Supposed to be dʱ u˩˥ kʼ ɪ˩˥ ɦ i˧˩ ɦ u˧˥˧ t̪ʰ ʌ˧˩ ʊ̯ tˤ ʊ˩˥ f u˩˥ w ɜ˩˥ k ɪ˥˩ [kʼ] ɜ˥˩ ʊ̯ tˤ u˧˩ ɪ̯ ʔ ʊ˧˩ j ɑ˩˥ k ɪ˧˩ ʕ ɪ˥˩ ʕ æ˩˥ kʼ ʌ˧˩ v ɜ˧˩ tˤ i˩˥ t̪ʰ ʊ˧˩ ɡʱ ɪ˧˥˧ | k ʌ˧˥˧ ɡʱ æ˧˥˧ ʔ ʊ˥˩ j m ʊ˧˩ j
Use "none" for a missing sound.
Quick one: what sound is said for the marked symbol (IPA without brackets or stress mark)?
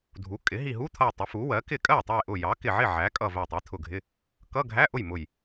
kʼ